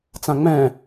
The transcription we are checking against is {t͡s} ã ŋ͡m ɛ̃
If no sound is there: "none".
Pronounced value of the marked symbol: t͡s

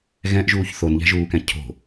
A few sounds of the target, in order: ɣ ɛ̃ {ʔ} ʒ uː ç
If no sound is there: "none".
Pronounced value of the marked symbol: ʔ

